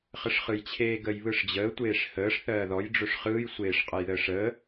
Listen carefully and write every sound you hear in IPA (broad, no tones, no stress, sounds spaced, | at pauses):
χ ə ʂ χ ɯ j t͡ɕʰ eː ɡ ə j β ɯ ʂ d͡ʑ əː tʷ eː ʂ h əː ʂ θ ɜː ð ɔ j ɖ͡ʐ ɵ ʂ χ ɯː j sʷ eː ʂ qʼ ə j ð əː ʂ əː